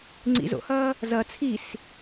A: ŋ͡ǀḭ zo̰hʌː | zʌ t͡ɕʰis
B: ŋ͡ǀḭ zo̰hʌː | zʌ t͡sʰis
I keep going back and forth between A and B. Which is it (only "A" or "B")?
B